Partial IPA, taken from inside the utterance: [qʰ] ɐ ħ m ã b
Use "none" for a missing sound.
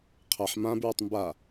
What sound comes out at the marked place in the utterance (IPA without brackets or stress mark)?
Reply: qʰ